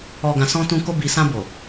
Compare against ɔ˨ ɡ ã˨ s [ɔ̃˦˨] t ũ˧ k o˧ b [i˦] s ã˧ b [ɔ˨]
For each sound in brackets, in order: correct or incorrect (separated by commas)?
incorrect, incorrect, incorrect